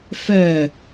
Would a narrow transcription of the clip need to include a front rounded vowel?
yes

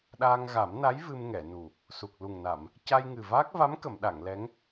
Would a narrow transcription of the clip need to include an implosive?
yes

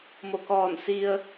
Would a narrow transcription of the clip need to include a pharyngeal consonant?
no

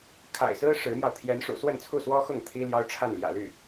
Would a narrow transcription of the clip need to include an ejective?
no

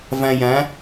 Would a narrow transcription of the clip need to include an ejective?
no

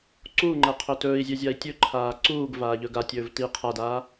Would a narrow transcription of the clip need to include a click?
yes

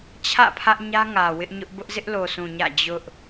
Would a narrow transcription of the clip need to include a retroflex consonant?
no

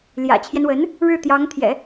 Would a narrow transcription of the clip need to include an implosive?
no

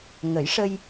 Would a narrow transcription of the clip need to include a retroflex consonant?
yes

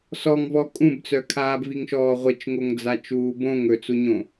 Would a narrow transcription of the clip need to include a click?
no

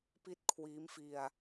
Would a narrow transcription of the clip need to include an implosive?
no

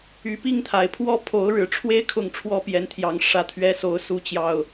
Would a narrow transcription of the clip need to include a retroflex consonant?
yes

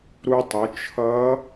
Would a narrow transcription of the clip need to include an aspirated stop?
yes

